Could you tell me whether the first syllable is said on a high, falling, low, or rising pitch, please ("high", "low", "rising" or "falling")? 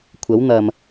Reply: rising